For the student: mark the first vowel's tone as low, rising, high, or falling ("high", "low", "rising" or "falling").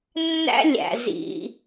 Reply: high